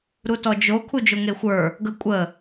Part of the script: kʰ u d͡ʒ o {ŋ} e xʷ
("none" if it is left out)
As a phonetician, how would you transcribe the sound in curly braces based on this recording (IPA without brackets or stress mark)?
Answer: ŋ